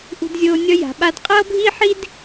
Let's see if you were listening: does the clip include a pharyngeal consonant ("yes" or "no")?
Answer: yes